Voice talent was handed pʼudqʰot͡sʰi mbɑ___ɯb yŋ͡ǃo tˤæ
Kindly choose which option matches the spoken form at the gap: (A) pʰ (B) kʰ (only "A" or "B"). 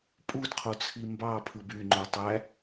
A